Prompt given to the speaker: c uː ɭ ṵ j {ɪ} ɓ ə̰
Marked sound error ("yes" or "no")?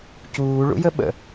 yes